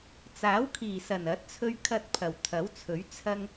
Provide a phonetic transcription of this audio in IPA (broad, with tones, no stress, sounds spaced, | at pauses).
t͡s aː˨˥ w kʰ iː˨˩ s ɐ˨˩ n ɐ˨˥ t̚ t͡sʰ ɵ˧ ɥ kʰ ɐ˧ t̚ pʰ ɐ˨˩ w t̪ʰ ɐ˨˥ w t͡sʰ ɵ˨˥ ɥ t͡sʰ ɐ˧ ŋ